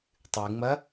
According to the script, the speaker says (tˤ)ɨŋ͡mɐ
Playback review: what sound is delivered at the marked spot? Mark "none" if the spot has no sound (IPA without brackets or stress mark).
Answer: tˤ